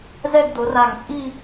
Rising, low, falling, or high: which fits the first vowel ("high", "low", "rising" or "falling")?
falling